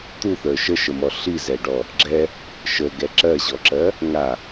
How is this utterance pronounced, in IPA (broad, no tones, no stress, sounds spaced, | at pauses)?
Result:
t̪ u θ ə˞ ʃ ə ʃ ə m ɔ ɬ i z ɛ ɖ ɔ | ɡ͡ǁ ɛ | ʃ ə ɡ ɛ ǁ ɜ ʑ ɔ ǁ ɜ | ŋ a